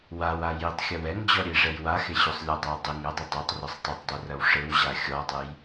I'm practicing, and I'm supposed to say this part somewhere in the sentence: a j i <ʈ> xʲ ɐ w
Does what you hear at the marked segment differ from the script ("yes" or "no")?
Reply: yes